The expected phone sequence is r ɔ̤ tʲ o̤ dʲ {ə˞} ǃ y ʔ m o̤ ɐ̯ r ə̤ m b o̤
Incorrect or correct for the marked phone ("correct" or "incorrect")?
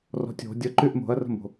incorrect